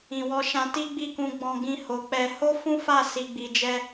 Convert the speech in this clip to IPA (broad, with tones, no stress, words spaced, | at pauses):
ĩ˨wɔ˧ʃã˧ti˦ ɡ͡bi˦˨kũ˧ ɡ͡bɔ̃˧ɡĩ˧ ho˨k͡pɛ˧ ho˦fũ˦fa˦˨ si˧ɡ͡bi˧d͡ʒɛ˦